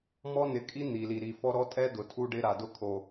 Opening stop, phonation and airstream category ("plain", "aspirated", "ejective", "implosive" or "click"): ejective